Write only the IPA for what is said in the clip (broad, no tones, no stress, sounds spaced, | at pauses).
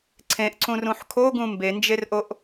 ǀʰ ẽ ʔ ǀ ũ r ũ ħ kʰ o ɡ ũ m b e n d͡ʒ e r ʔ o ʔ